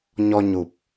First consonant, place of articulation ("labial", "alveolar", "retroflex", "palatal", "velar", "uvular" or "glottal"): palatal